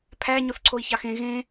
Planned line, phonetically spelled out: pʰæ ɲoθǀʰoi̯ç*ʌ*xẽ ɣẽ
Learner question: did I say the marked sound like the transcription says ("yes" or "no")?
no